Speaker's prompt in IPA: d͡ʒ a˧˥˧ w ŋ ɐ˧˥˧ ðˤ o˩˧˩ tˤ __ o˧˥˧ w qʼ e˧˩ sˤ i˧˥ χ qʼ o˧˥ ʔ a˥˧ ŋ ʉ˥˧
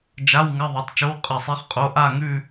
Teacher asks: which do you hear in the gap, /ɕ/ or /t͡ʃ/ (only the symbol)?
t͡ʃ